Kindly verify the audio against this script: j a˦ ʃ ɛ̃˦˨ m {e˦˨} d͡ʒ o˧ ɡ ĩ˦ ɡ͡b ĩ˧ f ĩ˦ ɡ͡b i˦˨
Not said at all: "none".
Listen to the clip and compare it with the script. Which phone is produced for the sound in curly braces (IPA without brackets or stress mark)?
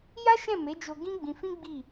e˨˦